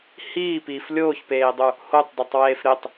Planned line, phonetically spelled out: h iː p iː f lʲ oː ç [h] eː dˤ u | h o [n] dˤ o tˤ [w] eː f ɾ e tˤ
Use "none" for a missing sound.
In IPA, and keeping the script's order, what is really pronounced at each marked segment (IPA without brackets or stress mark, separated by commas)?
p, tˤ, w